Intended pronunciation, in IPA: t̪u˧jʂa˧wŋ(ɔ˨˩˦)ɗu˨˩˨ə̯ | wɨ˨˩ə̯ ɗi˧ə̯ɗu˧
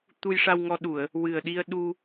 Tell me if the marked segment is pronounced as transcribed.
no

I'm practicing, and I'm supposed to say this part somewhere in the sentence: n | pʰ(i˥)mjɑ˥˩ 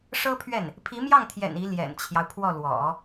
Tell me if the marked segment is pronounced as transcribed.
no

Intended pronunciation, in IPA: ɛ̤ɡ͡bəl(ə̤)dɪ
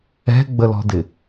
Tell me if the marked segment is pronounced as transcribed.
no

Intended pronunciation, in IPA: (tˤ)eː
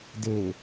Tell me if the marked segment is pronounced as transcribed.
no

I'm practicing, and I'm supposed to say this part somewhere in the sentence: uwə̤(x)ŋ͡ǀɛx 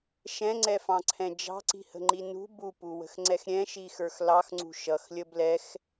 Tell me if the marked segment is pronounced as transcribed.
yes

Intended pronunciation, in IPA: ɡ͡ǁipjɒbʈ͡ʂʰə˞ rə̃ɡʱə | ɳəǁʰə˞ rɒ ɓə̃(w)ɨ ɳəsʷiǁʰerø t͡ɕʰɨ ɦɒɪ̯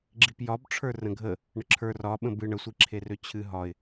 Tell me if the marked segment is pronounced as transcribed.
no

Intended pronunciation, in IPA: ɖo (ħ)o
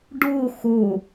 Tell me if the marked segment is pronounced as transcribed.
no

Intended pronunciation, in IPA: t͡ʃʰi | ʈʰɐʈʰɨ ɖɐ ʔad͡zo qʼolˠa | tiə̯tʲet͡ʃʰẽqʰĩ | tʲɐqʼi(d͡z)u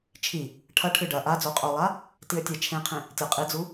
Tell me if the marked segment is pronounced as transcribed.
yes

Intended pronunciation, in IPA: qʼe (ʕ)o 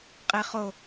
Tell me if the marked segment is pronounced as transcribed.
no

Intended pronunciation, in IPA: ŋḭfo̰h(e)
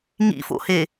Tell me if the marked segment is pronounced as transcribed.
yes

